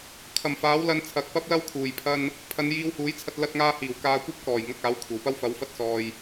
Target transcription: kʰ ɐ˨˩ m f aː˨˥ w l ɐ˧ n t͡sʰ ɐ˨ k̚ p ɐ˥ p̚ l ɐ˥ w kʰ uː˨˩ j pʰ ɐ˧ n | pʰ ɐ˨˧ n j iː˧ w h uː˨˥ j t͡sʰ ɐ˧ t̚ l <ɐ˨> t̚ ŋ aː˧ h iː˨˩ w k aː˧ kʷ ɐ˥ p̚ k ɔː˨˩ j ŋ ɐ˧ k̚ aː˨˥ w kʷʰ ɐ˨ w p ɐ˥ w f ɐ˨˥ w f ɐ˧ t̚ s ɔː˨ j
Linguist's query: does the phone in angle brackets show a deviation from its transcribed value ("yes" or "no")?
yes